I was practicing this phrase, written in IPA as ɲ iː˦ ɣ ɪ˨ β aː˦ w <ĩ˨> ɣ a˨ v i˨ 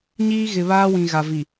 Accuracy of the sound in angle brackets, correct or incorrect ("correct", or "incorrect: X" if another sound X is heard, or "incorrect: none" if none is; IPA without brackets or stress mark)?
correct